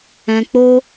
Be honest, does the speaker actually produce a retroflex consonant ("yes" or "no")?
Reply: no